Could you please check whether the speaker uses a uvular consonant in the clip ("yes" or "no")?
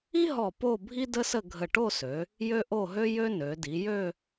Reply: no